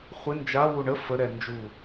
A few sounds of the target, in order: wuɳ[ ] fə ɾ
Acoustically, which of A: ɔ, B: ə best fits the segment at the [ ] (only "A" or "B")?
B